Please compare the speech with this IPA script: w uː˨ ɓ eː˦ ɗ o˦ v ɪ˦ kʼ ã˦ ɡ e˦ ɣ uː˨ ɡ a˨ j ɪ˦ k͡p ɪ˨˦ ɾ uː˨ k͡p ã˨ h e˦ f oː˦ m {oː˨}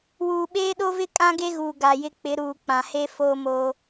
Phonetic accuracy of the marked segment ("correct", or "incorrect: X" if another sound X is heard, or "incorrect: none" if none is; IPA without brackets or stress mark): incorrect: oː˦